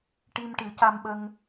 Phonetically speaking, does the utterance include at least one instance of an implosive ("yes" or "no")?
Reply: yes